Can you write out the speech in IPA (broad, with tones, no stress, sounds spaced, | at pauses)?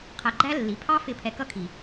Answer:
qʰ æ˧ ɡ͡ǃ æ˦ lː i˨˦ pʰ ɑ˦ f ɪ˧ pʰ ɛ˧ k ʌ˦ kʰ i˨